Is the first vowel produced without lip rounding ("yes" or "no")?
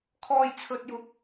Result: no